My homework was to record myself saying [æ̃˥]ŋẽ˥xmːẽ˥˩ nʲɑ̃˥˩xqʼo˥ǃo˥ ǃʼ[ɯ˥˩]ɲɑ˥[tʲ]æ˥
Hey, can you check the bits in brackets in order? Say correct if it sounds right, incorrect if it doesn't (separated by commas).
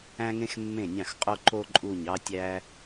correct, incorrect, correct